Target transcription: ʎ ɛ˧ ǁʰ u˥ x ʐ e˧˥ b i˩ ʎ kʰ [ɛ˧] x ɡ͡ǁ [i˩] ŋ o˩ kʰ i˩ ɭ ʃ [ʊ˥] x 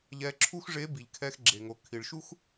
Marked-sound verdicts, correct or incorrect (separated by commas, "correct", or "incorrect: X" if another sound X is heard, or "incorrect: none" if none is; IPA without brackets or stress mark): correct, incorrect: e˩, incorrect: u˥